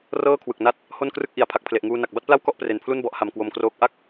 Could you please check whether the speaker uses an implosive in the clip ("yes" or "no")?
no